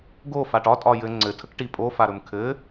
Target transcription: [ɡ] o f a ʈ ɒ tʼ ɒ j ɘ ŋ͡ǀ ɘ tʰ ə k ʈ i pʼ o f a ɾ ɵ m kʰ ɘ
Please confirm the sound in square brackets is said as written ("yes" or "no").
yes